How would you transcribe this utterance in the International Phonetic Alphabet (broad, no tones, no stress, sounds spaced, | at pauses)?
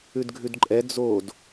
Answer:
ʉ d ɡʱ ʉ d ǃʼ ɛ d͡z o d